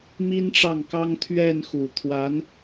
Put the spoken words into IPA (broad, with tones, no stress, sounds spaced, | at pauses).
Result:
m i˥ n ʈ͡ʂ ɑ˥˩ ŋ k ɑ˥ ŋ t̪ʰ ɥ ɛ˥˩ n x u˨˩ t̪ʰ w a˧˥ n